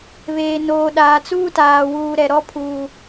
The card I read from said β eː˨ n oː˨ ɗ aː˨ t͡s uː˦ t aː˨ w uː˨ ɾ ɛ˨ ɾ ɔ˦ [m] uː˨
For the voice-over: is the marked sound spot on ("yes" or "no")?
no